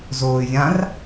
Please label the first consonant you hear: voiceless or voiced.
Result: voiced